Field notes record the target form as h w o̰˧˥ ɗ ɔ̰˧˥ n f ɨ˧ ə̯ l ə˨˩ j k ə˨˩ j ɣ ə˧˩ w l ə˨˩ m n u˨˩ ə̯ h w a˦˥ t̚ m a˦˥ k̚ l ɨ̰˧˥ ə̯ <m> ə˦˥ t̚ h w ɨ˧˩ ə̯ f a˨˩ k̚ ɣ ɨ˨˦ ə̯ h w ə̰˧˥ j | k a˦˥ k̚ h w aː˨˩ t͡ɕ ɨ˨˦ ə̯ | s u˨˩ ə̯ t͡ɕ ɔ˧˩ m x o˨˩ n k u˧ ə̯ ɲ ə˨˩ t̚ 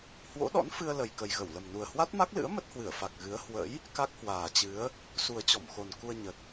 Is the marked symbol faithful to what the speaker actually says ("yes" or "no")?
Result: yes